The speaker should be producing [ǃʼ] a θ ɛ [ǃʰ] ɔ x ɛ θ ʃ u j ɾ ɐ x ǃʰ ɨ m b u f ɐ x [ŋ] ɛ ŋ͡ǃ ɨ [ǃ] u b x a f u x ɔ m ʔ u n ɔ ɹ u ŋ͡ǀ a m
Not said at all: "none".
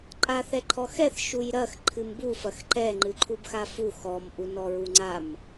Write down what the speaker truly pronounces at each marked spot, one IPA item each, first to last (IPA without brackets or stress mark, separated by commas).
ǃʼ, ǃʰ, ǃ, ǃʰ